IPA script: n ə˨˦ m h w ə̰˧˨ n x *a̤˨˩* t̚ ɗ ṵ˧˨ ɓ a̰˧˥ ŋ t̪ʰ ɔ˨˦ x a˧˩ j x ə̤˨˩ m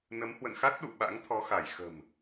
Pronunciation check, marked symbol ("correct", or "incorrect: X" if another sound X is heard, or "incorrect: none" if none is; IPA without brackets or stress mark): incorrect: a˦˥